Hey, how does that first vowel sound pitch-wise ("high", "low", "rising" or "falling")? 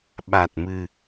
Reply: low